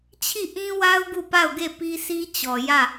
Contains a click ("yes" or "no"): no